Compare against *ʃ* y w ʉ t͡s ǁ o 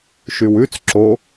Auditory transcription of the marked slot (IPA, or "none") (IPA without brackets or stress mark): ʃ